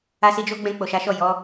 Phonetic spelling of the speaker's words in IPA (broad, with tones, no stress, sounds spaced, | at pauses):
a˦ s i˦ d͡ʒ o˦ ɡ͡b ɛ̃˧ k͡p o˨ ʃ a˨˦ ʃ ɔ˦˨ j ɔ˨˦